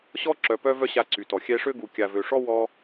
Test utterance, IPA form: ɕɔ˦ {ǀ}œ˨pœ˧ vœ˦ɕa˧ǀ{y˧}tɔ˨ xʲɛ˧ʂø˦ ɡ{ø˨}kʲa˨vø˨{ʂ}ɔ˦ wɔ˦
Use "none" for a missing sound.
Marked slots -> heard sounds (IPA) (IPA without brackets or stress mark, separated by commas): ǁ, y˨, u˨, ʂ